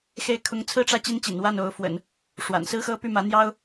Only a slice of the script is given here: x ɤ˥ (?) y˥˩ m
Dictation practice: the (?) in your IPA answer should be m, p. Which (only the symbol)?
p